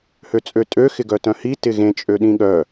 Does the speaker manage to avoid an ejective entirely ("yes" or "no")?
no